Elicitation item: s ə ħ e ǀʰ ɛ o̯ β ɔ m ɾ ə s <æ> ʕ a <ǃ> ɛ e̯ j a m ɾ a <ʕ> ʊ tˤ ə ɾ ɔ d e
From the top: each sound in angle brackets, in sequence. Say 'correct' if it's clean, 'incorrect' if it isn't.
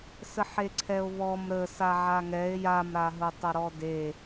incorrect: a, incorrect: ŋ, incorrect: ɦ

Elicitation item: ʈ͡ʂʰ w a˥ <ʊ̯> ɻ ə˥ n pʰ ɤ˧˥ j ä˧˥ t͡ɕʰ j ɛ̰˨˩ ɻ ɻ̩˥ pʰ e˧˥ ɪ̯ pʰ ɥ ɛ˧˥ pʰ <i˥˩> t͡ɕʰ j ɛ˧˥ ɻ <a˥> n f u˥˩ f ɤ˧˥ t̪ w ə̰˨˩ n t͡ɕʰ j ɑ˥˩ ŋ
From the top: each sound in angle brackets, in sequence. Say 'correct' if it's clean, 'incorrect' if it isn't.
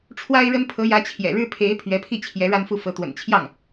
incorrect: ɪ̯, correct, correct

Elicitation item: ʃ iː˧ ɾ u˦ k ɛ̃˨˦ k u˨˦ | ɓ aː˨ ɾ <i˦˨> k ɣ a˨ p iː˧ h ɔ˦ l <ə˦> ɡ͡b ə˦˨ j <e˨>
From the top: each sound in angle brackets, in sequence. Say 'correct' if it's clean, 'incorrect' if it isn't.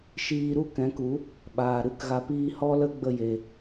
incorrect: ɨ˦˨, correct, correct

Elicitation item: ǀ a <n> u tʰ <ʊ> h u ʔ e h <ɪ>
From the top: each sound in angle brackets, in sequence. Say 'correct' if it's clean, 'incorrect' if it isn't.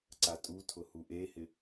incorrect: tʼ, correct, correct

